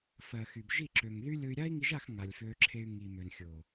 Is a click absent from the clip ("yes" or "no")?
no